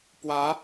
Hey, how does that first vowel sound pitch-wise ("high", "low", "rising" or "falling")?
rising